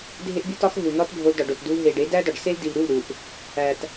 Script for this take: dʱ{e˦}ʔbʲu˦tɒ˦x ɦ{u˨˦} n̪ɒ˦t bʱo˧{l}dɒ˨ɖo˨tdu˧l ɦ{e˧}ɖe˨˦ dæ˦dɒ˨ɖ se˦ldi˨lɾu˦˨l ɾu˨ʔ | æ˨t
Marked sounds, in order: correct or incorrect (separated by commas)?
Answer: correct, incorrect, correct, incorrect